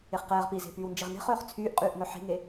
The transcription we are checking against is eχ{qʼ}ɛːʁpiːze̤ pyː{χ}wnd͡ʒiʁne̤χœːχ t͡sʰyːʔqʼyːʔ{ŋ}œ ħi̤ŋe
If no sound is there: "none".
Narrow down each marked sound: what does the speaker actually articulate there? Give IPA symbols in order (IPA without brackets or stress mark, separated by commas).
q, none, ŋ